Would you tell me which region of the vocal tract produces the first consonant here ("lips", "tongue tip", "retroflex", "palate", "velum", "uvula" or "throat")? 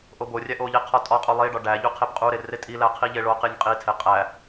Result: throat